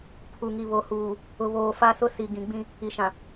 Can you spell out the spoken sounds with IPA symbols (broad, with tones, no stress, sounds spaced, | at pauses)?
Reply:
pʰ u˨ ŋ i˨ β o˨ h uː˨ | ʊ˨ β oː˨ f a˦ s ʊ˦ s i˨ ɡ ĩ˨ ɡ͡b ĩ˦ | i˨ ʃ ã˨